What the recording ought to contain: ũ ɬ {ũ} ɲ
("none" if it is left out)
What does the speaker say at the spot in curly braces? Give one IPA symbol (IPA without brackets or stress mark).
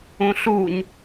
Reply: u